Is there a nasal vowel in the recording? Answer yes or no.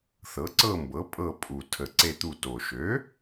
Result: no